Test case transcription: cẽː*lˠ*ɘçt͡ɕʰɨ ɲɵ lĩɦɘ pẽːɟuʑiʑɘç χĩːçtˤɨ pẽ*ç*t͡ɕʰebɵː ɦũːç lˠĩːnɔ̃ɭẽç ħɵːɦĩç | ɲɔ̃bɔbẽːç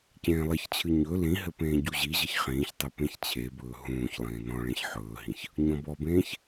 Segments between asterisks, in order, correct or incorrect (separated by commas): correct, correct